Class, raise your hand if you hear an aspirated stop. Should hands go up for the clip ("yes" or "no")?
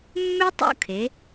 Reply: yes